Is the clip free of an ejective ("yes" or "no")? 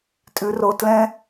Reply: no